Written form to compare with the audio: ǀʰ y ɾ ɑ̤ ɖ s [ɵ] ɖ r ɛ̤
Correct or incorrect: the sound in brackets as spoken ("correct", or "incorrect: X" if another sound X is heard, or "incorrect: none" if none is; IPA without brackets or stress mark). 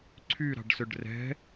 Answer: correct